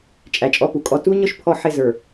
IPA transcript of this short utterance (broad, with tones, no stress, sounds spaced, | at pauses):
t͡ʃʼ æ˨ t͡ʃʼ ɔ˦ p u˨ kʼ ɔ˦ t u˦ ɲ ʊ˦ ʃ pʰ ɔ˦ ħ ɪ˦˨ z ə˞˨